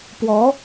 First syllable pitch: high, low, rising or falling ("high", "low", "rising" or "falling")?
rising